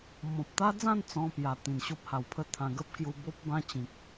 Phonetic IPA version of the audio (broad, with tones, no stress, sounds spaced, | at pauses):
m ɔ̃˨ p̚ t̪ a˦ d͡z ã˥˧ n t͡s ɔ̃˧ p j a˨˩ t̪ ĩ˨˩ n ɕ o˦ p̚ h a˨˩ w pʰ ə˥˧ t̪ʰ ã˧ ɡ ə˦ p̚ k j u˧ b o˦ p̚ b ã˦ t͡ɕ ĩ˨ k̚